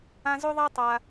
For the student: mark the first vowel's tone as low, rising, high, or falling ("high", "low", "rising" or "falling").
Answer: high